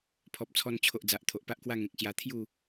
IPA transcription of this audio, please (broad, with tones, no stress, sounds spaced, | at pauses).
pʰ ɔ˨ p̚ t͡sʰ ɔ˧ n t͡ɕʰ o˨ ʔ d͡z a˨ ʔ t̪ʰ o˨ ʔ p a˦ ʔ k w a˦ ŋ ẽ˨ k̚ ɕ j a˧ t̪ʰ j u˥˧